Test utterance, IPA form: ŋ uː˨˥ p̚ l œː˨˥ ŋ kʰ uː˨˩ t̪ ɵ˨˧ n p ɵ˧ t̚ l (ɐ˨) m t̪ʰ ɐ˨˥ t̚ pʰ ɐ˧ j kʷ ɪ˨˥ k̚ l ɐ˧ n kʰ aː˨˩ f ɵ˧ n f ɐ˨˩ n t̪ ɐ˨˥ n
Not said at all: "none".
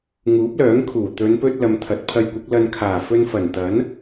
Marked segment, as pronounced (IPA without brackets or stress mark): ɐ˨